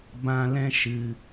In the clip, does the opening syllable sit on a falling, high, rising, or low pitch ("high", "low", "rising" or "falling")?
high